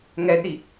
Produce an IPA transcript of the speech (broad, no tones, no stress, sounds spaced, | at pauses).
ŋ ɛ d ɾ i